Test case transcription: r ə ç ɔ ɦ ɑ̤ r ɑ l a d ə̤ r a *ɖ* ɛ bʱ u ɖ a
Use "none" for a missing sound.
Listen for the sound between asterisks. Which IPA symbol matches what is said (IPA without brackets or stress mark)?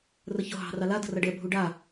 ɖ